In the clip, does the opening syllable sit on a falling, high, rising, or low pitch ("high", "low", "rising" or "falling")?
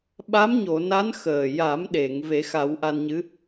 rising